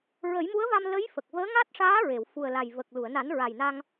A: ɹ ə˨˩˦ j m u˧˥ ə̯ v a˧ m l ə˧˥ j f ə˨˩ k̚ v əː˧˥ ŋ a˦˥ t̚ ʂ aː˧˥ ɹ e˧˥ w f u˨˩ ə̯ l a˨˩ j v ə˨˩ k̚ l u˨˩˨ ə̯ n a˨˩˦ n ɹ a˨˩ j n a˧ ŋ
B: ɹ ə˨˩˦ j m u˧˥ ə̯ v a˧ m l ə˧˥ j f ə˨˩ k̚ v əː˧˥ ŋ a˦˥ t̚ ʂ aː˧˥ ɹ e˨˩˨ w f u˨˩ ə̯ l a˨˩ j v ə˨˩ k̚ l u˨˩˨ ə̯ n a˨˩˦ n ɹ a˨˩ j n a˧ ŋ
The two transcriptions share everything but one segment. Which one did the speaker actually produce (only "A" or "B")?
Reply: B